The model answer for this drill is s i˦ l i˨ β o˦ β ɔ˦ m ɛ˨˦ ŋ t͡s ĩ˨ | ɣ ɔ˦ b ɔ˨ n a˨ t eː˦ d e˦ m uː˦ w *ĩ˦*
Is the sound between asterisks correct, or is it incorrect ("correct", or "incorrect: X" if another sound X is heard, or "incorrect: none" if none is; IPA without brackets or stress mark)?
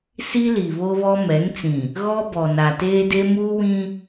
correct